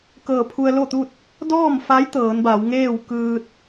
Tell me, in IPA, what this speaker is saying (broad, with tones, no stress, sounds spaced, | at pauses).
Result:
k ɤː˧˩ pʰ u˧ ə̯ l o˥˨ t̪ u˥˨ t̚ | d ɔː˥˨ m f a˧˥ j t̪ ɤː˩˧ n b a˩˧ w ŋ eː˥˨ w k ɯː˧ t̚